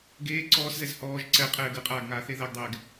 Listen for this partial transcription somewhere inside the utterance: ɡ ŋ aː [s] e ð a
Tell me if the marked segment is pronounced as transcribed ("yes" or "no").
no